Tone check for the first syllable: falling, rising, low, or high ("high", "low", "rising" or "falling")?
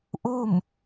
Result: falling